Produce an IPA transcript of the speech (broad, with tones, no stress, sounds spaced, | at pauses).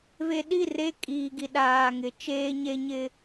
v e˨ ɗ i˦˨ r e˦ kʼ iː˨ ɡ i˨ ɗ aː˨ ŋ ɪ˨˦ t͡ʃ eː˦ ɲ e˦ ɲ ɪ˦